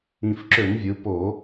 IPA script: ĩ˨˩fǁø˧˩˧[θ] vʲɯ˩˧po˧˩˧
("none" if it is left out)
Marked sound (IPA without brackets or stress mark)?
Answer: n